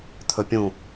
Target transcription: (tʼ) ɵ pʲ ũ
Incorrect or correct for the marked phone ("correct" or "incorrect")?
incorrect